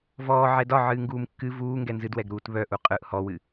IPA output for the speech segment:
vɔː ʕɛdɒ ʕɨːŋɡuːmkːɨ vuː ŋɡɛnzɨdwɛɡ ɾuːtβœ ʔuqʼɯʔ hɔwɨ

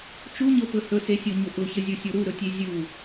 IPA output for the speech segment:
t͡ʃuɲɤpɵ hɵsesʲoɲʊ ʔʊçəzʲusʲo ɾuɾɵtʲe zʲu

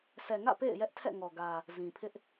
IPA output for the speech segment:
sʰɛ˨ŋä̰˦˨ pḛ˦˨ɪ̯ jɛ˦ʔtʰɛ̰˦˨ŋɔ˨ ɡä˨ | zĩ˨ pʰɪ˦ʔ

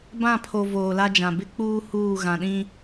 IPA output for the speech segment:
bã˦˨pʰo˨ voː˨la˦d͡ʒã˨ bɪ˦k͡puː˦ huː˦˨ ɣã˨ɗĩ˦

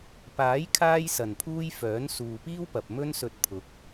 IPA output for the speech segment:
paː˨˥jkʰaː˧jsɐ˨˩npʰuː˧j fœː˨˥nsuː˨piː˥wpɐ˨p̚ mɵ˥nsɵ˧t̚pʰʊ˨˥k̚

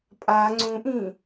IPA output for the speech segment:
pʼa ŋ͡ǀũʔĩ

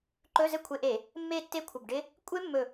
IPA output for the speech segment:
ǃɵ˧˥˧zɘ˥˨kʷʰe˧˩˧ʔe˧˩˧ | mːe˥˨tːe˥˨kʷʰə˧˩bɖɪ˦˥ | kʷʼe˦˥mːɵ˧˩

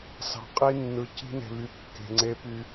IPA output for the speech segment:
sɑ̤˨qʼi˦nːɯ˨ ci̤˦ne̤˨βy˨ kːe̤˨ŋ͡ǀe˦py˦

